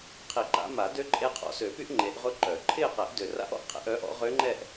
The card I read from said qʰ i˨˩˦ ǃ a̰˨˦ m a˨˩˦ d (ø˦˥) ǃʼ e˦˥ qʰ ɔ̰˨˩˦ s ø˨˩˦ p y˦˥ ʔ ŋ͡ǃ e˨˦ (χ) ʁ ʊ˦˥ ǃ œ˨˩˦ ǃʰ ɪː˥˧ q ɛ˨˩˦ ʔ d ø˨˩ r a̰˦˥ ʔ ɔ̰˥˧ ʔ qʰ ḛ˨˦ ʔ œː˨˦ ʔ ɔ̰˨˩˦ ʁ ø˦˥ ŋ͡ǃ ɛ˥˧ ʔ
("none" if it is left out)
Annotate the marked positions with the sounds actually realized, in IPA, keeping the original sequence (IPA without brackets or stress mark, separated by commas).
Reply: ø˦˥, ʔ